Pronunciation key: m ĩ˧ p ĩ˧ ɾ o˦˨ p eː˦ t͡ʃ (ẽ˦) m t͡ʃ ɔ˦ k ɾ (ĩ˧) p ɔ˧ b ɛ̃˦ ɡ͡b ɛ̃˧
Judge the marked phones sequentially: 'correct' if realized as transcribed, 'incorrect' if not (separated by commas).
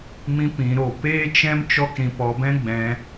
incorrect, correct